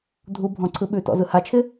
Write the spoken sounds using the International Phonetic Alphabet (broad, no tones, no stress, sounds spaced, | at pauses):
dʱ u bʱ ɔ̃ ǀʰ ɯ ɓ ʉ t ɔ̰ z ɯ h a t͡ʃʰ ɪ